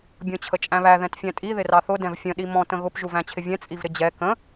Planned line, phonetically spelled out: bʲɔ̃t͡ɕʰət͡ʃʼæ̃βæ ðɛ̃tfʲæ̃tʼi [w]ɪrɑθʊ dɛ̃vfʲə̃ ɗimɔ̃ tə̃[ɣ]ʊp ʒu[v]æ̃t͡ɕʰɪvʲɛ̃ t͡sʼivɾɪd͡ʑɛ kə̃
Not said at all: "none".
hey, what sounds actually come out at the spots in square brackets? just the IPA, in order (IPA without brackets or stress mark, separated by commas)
ð, ɣ, v